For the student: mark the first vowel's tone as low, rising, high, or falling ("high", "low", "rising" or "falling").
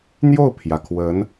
falling